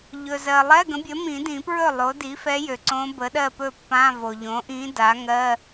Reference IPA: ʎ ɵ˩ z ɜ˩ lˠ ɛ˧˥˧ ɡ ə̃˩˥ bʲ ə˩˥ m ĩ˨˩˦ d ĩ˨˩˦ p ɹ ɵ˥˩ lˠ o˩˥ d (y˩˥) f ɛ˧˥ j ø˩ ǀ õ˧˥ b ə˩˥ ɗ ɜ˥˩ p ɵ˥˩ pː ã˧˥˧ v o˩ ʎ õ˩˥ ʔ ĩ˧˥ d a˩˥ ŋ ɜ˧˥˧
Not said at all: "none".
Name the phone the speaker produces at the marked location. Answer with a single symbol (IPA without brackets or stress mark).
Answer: i˩˥